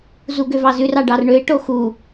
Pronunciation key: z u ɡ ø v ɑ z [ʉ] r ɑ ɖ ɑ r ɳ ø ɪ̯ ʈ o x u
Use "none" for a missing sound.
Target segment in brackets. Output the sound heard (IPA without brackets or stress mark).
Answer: ʉ